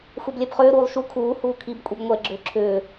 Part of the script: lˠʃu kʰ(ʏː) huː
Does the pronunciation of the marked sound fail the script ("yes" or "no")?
yes